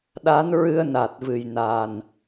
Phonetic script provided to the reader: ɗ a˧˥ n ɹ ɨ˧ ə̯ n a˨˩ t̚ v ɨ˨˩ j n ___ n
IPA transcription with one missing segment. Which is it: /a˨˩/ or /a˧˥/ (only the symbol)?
a˨˩